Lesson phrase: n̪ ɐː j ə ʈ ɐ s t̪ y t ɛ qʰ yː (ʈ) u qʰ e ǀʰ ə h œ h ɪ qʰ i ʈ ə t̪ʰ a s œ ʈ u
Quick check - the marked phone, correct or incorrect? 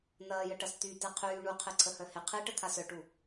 incorrect